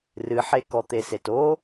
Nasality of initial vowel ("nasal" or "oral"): oral